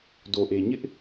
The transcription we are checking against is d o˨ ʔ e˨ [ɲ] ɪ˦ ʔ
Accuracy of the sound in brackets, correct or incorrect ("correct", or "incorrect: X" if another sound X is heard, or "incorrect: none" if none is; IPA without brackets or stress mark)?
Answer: correct